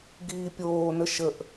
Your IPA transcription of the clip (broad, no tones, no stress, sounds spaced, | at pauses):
ɡ iː pʲ oː n ə ʃ ə ʔ